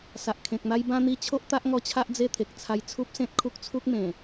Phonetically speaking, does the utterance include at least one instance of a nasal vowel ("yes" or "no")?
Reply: yes